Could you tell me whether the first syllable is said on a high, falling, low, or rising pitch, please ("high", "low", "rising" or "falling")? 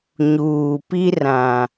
low